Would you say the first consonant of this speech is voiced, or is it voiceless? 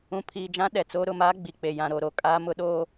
voiceless